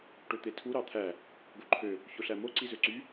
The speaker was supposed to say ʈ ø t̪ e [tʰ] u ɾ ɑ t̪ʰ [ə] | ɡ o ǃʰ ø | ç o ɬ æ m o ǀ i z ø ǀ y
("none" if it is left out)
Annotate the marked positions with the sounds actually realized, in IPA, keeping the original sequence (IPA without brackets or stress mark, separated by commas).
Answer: tʰ, æ